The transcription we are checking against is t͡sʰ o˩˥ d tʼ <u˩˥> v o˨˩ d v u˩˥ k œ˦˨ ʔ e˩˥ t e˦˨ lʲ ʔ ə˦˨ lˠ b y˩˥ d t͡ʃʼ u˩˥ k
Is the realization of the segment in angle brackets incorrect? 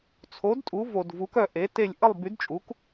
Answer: no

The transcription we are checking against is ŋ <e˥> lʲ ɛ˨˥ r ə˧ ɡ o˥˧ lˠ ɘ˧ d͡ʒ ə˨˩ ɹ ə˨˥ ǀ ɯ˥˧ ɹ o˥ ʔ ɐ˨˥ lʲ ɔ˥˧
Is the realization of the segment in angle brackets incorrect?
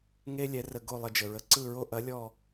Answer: no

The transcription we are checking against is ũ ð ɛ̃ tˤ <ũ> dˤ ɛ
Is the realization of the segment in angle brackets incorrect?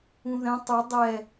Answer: yes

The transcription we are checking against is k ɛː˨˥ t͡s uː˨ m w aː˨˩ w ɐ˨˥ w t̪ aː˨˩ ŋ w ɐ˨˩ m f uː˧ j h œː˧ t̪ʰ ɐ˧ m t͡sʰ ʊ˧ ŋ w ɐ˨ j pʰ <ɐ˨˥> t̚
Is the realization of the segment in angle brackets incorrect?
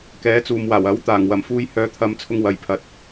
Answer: no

